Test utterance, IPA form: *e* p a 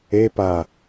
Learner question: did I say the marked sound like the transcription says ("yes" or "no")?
yes